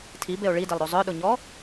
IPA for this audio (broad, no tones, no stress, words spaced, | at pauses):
tʰibeo̯ ɭidelˠɾo zˤœɗʊɲɔ